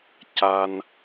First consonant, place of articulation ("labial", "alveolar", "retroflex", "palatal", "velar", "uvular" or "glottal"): palatal